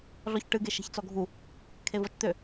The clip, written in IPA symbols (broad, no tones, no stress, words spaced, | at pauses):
ɮɔçʈɨɡe ʃe̤çt͡sɔɡʱu | kʰevɔt͡ʃt̪ø